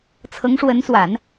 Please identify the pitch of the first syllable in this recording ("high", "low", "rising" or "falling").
rising